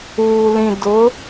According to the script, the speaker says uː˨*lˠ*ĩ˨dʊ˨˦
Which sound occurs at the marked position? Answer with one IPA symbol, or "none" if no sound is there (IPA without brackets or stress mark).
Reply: l